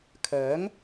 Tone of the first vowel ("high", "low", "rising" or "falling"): rising